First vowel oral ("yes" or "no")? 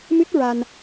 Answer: yes